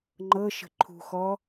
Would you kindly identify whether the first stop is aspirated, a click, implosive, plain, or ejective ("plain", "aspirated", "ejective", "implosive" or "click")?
click